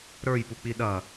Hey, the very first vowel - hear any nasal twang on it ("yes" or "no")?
no